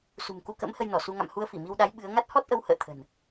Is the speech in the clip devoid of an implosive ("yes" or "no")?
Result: no